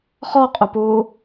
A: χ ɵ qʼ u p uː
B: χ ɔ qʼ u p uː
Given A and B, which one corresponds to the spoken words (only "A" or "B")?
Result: B